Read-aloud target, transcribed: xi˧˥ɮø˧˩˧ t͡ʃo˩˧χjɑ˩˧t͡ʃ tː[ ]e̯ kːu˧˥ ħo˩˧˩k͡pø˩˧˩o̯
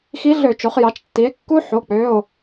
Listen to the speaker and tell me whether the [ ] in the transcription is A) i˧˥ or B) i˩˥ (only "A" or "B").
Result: B